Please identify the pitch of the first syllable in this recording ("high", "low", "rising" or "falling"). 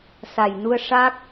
low